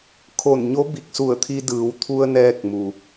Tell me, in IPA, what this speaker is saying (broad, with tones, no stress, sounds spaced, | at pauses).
kʰ o˧˩ n ɲ o˧˥ b i˧˩ k̚ s u˧˩ ə̯ t̪ʰ i˧ d ɯː˩˧ w t̪ʰ u˧ ə̯ n ɛː˧ k̚ m u˩